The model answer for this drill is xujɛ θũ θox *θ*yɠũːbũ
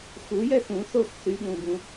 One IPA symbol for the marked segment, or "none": θ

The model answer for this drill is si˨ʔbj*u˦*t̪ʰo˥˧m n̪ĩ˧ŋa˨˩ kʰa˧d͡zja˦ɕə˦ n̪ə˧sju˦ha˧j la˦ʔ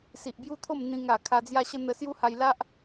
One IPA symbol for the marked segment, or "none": u˦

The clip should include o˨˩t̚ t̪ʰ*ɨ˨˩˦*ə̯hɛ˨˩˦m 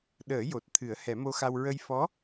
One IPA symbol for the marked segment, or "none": ɨ˨˩˦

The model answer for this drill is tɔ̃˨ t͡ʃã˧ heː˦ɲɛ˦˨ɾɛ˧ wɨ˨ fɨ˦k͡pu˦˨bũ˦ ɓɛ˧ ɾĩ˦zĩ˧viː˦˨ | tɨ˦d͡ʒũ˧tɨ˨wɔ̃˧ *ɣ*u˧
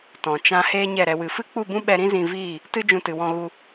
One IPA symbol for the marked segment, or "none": ɣ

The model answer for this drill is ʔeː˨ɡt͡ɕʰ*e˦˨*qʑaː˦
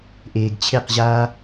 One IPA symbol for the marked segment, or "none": e˦˨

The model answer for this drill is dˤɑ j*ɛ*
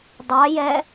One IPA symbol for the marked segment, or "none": ɛ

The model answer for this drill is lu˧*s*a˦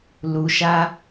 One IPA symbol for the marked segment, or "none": ʃ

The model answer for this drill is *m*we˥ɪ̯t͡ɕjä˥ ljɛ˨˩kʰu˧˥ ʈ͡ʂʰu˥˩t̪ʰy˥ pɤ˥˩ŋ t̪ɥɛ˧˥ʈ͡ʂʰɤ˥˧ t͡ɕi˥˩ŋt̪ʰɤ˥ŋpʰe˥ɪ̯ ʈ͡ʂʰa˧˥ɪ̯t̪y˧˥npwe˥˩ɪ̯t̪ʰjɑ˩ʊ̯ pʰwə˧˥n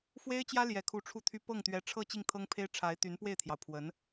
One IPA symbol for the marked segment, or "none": f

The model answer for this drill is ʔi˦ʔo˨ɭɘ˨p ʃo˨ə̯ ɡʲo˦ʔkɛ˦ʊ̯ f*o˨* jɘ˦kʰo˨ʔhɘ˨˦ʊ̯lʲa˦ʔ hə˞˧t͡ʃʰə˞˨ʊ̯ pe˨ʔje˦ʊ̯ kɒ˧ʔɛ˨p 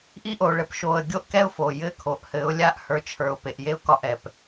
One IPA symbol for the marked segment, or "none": o˨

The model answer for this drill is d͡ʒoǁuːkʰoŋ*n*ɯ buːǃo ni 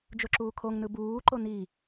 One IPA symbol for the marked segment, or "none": n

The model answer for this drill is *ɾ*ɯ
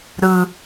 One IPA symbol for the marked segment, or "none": ɾ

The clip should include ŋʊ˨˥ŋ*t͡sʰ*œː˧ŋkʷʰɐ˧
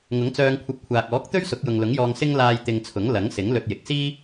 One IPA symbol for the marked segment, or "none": t͡s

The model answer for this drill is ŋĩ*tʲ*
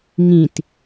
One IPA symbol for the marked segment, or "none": t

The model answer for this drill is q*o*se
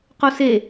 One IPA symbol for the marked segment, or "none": o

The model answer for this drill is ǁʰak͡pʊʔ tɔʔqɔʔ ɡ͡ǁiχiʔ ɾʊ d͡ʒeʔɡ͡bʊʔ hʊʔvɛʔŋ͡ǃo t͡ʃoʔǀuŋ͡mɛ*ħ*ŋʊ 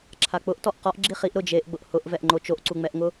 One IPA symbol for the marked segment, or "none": ʔ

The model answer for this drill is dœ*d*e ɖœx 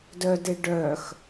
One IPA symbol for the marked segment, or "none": d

